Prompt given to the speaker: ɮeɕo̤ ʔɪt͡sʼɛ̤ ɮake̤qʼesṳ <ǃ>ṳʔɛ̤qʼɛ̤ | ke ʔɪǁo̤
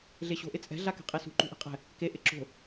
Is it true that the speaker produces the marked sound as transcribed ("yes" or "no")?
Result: yes